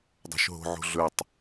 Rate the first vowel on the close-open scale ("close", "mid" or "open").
mid